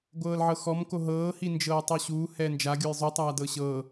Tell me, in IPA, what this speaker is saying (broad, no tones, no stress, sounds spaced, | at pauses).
ɡʷ ɤː l ʕ ɤ x ɔ m k o ɦ ɤː h i n d͡ʒ ɤː tˤ o ɕ uː h ɛː n d͡ʒ a ɡʲ o j zˤ u tˤ aː d ɤ ɕ ɤ